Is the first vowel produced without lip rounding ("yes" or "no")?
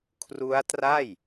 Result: no